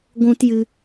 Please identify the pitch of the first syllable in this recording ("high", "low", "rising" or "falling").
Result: high